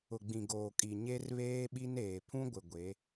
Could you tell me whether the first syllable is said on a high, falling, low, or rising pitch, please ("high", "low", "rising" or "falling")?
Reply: low